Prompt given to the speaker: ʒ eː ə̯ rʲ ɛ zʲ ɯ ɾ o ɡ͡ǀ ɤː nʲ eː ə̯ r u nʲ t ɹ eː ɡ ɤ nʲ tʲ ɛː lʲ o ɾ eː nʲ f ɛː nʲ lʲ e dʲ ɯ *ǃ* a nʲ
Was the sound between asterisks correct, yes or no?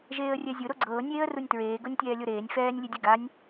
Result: no